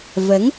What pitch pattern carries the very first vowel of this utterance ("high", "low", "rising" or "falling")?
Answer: rising